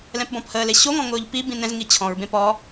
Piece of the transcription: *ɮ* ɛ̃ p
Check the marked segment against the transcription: incorrect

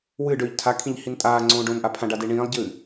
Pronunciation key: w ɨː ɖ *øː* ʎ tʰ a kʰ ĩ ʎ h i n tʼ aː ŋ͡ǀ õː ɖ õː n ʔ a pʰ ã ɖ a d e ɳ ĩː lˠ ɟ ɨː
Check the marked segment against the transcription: correct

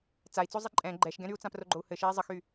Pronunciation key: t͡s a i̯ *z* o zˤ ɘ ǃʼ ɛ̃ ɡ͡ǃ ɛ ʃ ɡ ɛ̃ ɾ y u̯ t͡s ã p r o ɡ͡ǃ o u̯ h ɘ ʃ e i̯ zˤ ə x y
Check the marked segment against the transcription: incorrect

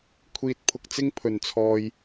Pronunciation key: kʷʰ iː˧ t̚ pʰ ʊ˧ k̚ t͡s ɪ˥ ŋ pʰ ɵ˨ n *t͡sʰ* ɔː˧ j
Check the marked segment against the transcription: correct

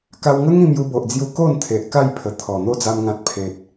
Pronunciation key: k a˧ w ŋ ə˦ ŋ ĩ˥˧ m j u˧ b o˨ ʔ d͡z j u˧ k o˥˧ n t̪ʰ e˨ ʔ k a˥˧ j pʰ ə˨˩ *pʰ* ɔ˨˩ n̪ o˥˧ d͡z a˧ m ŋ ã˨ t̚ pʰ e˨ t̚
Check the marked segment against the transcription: incorrect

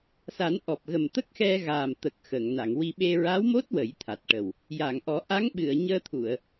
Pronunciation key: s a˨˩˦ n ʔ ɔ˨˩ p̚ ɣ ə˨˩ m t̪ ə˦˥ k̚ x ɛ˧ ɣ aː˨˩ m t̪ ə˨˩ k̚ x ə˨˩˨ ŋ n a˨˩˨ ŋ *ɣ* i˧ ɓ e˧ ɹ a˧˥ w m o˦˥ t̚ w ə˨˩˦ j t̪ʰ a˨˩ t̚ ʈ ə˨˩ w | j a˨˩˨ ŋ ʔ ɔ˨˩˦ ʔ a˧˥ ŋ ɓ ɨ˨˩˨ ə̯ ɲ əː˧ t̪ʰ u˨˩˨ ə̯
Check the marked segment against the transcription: incorrect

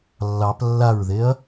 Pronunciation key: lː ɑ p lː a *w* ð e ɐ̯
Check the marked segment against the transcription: incorrect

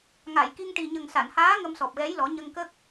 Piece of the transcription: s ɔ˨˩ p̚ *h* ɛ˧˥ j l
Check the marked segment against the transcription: incorrect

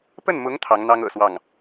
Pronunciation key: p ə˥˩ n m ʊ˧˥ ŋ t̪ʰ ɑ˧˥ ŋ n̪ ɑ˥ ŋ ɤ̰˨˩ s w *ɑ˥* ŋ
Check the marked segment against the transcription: incorrect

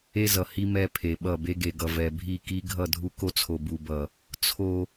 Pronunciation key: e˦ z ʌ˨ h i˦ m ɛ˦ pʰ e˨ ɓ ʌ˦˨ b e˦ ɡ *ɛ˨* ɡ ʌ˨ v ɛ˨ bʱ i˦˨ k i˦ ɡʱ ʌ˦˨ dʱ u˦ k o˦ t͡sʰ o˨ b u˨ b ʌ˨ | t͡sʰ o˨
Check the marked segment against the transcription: incorrect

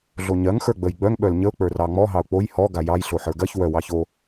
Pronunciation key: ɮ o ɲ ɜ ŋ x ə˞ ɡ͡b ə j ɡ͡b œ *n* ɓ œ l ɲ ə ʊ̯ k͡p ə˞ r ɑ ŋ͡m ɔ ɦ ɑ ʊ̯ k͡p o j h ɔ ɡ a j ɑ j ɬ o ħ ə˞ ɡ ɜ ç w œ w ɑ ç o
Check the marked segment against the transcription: incorrect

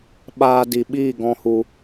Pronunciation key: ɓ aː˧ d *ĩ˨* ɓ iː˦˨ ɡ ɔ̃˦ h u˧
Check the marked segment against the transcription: incorrect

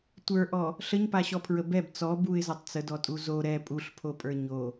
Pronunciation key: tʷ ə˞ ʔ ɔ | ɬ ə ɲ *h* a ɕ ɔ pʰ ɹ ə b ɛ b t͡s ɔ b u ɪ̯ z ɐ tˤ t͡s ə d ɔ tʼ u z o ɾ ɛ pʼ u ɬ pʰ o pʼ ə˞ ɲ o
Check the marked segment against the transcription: incorrect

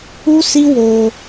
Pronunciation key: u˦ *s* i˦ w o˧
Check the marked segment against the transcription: correct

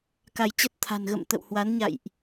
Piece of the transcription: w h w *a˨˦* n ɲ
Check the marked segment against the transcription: correct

